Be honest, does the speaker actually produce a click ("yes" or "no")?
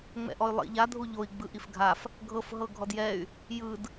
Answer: no